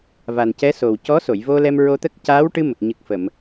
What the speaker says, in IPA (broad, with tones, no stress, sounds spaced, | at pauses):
v a˨˩ n c ɛ˧˥ s o˨˩ w c ɔ˧˥ s o˨˩˨ j v o˧ l ɛ˧ m ɹ o˧ t̪ ə˦˥ k̚ c aː˧˥ w ʈ ɨ˧ m ə˨˩ k̚ ɲ ɨ˨˩ k̚ f ə˨˩˨ m